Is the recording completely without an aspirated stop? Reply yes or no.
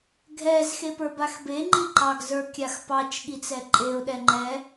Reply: yes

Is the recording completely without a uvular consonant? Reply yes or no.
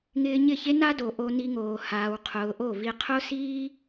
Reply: no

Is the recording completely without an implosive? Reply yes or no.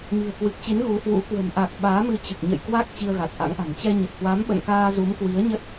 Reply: no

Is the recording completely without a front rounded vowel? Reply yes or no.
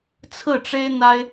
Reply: yes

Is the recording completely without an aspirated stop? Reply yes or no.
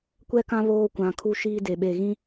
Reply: no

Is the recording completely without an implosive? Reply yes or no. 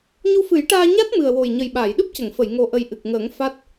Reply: no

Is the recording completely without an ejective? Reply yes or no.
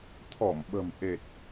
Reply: yes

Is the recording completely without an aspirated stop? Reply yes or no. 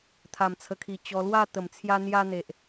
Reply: no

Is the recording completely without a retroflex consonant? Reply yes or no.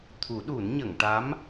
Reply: no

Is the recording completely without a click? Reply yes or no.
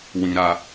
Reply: yes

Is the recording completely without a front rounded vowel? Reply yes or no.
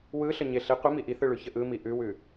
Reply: yes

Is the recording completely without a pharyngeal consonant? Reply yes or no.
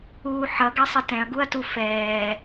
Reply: no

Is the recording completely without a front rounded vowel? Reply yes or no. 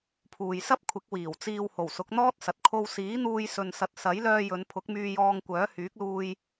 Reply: no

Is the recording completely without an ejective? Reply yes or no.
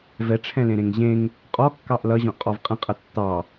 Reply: no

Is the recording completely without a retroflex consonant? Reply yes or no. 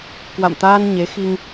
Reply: yes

